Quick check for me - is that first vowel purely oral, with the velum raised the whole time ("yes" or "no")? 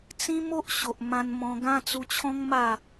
no